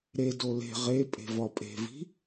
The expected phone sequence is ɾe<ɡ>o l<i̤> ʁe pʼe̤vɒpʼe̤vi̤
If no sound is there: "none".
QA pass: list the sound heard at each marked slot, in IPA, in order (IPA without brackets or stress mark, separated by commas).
d, e̤